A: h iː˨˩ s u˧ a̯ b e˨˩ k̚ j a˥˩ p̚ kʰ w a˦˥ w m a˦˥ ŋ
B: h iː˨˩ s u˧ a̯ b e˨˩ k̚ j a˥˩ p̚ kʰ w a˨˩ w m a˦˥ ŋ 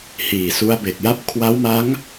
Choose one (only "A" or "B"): A